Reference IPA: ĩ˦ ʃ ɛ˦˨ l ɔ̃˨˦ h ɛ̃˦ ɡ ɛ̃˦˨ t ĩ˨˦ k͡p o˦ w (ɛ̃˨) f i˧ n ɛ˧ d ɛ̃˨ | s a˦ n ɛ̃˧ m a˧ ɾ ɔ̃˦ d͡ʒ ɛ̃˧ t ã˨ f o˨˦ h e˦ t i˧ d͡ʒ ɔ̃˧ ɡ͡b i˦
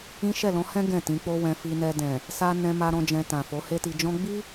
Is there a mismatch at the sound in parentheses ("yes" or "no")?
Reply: yes